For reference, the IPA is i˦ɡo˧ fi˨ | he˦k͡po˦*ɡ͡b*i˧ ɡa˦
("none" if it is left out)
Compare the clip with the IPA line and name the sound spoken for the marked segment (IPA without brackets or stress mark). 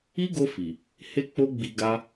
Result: ɡ͡b